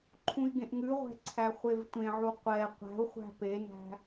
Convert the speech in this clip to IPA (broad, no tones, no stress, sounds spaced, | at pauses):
ǃʰ ũ i̯ ɡ ẽ ʔ ŋ ʉ ʁʷ ɛ̤ ǀʰ æ χʷ e v tʷ ẽ ʕ u qʷ ɛ qʷ æ̤ u̯ χʷ æ̤ p e n æ̤